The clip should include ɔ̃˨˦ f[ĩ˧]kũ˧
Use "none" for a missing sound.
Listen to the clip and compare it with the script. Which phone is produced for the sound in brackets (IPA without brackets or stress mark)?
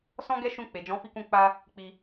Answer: i˧